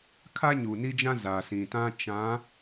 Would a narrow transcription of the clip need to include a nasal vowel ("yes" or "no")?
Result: yes